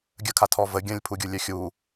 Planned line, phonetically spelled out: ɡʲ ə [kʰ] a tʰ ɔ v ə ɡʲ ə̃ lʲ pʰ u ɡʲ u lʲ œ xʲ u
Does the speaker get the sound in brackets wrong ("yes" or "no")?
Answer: no